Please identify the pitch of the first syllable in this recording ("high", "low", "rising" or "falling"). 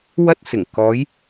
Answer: high